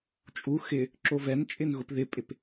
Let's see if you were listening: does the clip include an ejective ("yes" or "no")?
yes